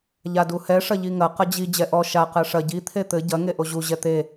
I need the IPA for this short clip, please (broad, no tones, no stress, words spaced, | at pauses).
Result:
ʎaduhɛ ʂɐʎiŋɐ qɐd͡ʑi d͡ʑɛʔɔ ʃa qɛʂɐ ɟi t̪ʰet̪ɘ ɟɐ ŋeʔoʑu ʑɛt̪e